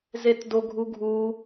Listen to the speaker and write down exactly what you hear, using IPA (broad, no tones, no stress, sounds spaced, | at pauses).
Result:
z e t d o ɡʱ u ɡʱ u